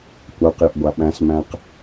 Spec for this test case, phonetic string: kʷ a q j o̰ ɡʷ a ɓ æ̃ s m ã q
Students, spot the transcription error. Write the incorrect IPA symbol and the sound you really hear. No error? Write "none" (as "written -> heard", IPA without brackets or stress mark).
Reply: ã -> æ̃